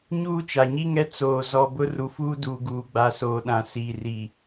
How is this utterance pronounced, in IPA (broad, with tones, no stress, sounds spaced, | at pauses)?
ɲ uː˦ t͡ʃ a˨ ɲ i˦ ŋ ɛ˦ t͡s oː˨ z ɔ˨ b ʊ˦ r u˨ f uː˦ d uː˨ ɡ uː˨ ɡ͡b a˨ s oː˨ ɗ ã˨ s iː˨ r i˨